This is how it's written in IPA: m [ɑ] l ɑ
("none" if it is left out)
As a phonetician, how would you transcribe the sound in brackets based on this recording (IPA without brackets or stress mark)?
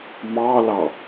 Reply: ɑ